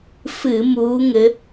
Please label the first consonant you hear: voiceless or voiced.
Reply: voiceless